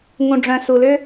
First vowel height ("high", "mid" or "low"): high